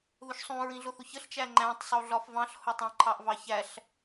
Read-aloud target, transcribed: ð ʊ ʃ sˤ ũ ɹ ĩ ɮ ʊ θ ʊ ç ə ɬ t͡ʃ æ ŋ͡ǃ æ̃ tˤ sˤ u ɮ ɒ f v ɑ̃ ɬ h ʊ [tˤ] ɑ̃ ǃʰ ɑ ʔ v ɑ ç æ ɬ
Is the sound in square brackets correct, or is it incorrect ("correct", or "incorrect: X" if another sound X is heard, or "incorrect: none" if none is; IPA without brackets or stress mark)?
correct